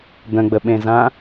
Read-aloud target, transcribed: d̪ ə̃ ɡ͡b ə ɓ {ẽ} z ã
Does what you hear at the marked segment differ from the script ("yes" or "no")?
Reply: no